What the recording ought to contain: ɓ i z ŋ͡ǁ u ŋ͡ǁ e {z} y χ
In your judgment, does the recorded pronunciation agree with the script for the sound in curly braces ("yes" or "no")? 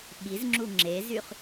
yes